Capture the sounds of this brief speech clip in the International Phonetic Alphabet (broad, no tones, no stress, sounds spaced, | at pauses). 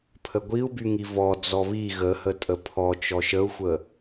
pʰ ə ɡʷ i u̯ b y ŋ i v ɔ d͡z ɔ β i ɣ ə h ə tʼ ə pʰ ɔ t͡ʃ ɔ ʃ ə u̯ xʷ ə